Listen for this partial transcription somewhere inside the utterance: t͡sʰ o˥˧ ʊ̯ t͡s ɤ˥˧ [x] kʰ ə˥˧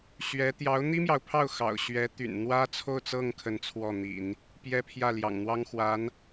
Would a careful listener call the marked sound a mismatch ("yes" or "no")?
yes